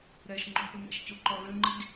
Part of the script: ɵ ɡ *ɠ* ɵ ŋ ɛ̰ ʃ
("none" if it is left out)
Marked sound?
ɠ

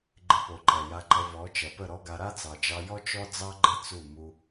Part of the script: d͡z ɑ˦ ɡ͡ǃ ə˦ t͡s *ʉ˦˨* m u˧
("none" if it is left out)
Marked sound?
u˦˨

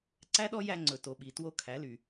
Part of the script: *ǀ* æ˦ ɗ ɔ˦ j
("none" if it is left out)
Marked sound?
ǀ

